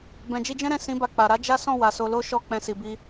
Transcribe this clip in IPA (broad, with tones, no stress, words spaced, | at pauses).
bɛ̃˨d͡ʒi˧d͡ʒɛ̃˦ɾɛ̃˦˨ sĩ˨˦ba˧k͡pa˨ ɾa˨˦d͡ʒa˦sɔ̃˦˨ wa˨so˧lo˦ ʃɔ˦˨k͡pɛ̃˧si˨bi˧